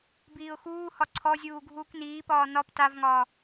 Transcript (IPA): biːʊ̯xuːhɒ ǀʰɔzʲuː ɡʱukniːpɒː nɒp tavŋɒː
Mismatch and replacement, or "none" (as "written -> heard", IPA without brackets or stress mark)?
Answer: u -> uː